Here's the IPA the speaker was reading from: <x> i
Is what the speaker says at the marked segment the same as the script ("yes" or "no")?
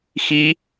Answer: yes